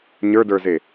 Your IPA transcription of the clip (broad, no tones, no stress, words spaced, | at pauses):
ɲə˞də˞ze